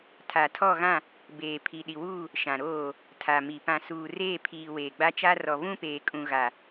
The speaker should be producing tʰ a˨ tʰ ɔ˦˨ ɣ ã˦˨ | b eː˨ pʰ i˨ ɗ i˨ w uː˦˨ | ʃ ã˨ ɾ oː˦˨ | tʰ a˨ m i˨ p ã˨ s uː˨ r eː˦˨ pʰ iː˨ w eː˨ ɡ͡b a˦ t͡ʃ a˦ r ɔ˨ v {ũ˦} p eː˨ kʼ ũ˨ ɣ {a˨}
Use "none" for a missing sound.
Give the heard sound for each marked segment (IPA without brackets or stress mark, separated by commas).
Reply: ũ˦, a˨